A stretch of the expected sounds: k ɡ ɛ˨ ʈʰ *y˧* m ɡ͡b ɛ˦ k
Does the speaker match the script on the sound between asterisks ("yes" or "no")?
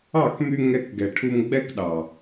no